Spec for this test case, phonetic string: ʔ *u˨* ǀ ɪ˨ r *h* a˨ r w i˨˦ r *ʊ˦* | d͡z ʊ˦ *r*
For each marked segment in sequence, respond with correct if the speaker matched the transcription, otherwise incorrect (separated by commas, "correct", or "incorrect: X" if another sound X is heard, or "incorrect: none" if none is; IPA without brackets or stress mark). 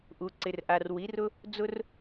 correct, incorrect: ʔ, correct, correct